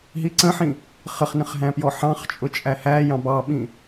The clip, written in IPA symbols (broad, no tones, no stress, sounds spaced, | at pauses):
ɦ i ǀ ə̃ ħ ĩ | χ ə χ n ə̃ χ ɦ æ̃ p j ɔ ħ ɑ̃ χ t͡ʃʼ ʊ t͡ʃʼ æ h æ j ɑ̃ b ɑ ɓ ĩ